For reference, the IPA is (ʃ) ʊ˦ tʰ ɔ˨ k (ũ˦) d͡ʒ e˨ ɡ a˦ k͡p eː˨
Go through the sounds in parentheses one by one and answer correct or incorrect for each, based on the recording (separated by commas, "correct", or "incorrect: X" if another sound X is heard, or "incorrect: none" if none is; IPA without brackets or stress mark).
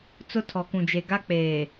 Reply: incorrect: t͡s, incorrect: ũ˨